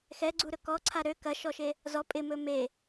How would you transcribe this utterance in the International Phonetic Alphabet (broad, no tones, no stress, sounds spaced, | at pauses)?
x ɛ ɡ͡ǀ u ɾ ɵ k ɔ ǀʰ a ɾ ø k ɐ ʃ ɔ ʃ e | z ɔ pʼ ɪ m ɵ m e